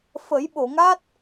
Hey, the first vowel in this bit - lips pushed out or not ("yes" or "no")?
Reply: no